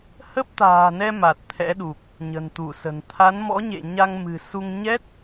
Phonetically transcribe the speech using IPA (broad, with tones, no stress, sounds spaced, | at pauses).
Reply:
h ə˦˥ p̚ t̪ a̤ː˨˩ n ɛ˧ m a˨˩ t̚ t̪ʰ ɛ̰˧˥ ɗ u˨˩ k̚ | ɲ ə̤˨˩ n t̪ u˧˩ s ə̤˨˩ n t̪ʰ a˨˦ n m ɔ̰˧˥ ɲ ḛ˧˨ ɲ a˧ ŋ m ɨ̤˨˩ s u˧ ŋ ɲ ɛ˦˥ t̚